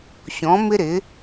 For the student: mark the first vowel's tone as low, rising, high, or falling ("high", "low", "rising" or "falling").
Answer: rising